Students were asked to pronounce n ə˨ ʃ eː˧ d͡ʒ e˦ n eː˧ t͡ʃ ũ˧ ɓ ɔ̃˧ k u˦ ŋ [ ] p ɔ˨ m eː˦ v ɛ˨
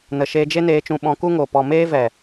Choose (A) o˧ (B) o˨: B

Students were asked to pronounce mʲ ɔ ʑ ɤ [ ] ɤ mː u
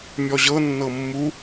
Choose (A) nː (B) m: A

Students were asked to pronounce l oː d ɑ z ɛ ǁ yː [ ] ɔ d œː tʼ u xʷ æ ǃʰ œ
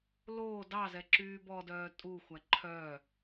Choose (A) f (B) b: B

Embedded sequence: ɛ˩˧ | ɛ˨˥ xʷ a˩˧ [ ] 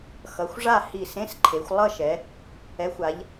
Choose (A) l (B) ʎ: B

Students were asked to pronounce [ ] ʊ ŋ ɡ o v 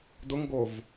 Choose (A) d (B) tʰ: A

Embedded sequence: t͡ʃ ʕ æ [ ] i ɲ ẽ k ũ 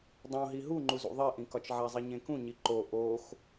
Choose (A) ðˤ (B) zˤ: B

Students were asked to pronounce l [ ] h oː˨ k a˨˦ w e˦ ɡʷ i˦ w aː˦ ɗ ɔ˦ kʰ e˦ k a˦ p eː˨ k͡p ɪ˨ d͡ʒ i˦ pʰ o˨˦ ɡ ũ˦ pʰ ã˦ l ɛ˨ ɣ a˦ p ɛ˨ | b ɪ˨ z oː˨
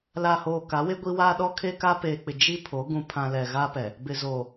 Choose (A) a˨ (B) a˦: A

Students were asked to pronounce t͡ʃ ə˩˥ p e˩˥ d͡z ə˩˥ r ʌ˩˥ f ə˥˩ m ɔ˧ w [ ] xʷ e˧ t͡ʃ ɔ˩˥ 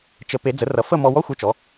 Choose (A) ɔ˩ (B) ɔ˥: B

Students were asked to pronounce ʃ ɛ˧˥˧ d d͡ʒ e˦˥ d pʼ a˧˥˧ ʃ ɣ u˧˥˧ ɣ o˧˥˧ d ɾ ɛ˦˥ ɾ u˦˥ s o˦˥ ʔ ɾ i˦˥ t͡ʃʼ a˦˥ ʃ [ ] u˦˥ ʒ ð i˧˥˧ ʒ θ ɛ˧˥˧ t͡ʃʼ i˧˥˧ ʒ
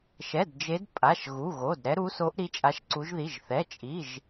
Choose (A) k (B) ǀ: B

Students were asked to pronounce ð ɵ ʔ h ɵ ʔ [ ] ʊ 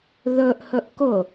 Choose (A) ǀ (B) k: B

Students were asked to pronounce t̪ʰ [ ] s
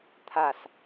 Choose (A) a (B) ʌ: A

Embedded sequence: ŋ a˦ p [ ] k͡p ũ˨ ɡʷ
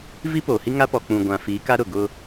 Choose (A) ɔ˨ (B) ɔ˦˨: A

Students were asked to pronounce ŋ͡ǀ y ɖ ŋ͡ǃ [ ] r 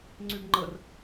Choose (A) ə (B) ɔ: A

